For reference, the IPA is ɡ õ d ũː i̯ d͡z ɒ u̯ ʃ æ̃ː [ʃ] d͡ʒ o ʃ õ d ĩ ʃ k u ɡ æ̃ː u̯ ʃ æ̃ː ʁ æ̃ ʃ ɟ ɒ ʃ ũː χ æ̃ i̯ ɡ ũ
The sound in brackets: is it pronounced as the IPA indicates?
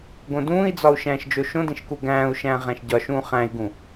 yes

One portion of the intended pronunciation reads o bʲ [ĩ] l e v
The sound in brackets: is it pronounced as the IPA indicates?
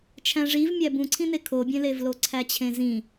no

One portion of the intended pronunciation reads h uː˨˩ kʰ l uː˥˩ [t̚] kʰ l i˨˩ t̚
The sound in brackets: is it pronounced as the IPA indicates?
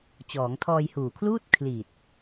yes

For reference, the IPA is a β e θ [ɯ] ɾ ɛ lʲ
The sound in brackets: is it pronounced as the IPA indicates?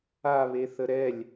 no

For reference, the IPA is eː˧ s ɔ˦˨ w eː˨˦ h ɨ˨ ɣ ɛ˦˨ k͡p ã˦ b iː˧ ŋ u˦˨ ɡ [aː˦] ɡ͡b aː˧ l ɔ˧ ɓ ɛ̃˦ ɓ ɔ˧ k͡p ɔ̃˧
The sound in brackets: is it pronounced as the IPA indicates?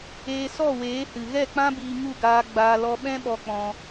no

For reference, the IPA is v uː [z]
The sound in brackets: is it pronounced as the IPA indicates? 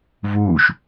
no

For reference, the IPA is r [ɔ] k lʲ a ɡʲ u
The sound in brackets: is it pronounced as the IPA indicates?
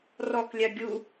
yes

